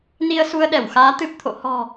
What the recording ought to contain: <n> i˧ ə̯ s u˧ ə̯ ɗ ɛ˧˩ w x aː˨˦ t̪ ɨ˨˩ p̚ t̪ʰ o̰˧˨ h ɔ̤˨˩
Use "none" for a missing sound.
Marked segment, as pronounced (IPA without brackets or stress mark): n